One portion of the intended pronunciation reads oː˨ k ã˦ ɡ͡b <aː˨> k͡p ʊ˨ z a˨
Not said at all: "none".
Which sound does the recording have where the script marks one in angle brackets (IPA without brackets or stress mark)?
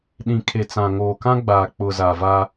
aː˨